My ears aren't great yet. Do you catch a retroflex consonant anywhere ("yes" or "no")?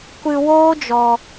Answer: no